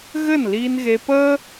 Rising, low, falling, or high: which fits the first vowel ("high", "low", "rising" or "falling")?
falling